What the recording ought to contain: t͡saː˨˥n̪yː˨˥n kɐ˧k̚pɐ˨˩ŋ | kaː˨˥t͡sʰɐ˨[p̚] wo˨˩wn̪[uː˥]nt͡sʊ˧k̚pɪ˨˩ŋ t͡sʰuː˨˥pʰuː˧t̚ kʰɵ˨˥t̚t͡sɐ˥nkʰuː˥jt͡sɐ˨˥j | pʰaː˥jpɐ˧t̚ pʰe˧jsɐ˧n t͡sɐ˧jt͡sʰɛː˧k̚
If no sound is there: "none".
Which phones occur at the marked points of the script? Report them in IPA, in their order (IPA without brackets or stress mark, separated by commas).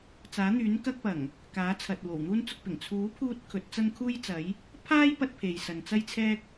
t̚, uː˥